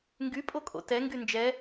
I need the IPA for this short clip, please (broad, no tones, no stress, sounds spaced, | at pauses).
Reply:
ŋ ɡ y pʼ o kʼ o̰ t ɛ ŋ ɡ y n d͡ʒ ɛ